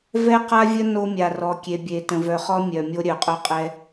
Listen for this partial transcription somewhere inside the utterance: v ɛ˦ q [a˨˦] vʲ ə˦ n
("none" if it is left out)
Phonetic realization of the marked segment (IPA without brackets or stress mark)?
a˦